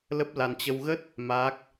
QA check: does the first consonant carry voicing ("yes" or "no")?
yes